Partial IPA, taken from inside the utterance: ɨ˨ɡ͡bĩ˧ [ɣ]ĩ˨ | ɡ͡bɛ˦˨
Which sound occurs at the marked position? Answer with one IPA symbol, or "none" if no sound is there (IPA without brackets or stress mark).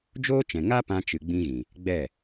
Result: ɣ